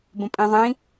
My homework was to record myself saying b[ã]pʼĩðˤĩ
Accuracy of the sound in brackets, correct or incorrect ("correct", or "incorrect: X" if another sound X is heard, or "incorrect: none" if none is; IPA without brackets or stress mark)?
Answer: incorrect: ə̃